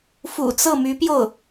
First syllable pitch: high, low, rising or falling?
low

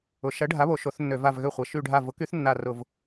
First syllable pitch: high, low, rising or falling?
rising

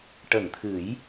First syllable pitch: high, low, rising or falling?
low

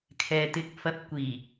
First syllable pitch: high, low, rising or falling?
low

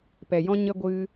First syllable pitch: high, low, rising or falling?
low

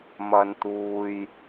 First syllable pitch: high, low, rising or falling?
low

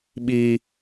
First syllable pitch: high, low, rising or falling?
high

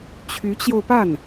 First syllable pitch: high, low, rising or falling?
rising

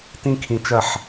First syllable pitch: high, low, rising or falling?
high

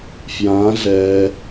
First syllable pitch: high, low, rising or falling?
rising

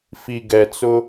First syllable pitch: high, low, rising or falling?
low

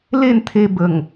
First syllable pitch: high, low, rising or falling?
falling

